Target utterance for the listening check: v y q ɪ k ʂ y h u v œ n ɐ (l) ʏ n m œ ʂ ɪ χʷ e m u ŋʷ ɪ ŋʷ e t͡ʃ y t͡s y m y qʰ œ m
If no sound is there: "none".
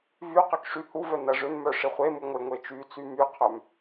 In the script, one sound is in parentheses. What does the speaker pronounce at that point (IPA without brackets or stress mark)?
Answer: ʐ